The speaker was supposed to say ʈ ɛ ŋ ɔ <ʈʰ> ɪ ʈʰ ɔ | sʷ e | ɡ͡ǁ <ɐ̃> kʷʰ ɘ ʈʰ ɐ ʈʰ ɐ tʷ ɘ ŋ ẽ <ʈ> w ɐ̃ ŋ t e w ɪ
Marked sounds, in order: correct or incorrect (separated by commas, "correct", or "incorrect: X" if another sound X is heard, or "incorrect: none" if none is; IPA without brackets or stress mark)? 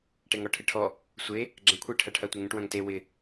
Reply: correct, correct, correct